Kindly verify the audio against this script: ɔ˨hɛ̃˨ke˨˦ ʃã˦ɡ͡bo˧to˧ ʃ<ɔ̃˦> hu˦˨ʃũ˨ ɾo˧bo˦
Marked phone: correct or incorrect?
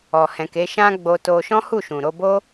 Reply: correct